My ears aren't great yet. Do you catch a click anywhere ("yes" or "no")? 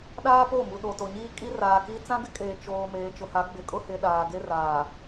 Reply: no